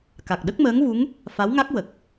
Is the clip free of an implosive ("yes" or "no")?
no